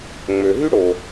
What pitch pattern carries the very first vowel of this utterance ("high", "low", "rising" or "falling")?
low